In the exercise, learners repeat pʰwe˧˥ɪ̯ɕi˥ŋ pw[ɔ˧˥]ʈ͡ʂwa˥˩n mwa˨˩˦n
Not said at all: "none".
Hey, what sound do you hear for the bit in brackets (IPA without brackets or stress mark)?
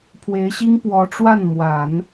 ɔ˧˥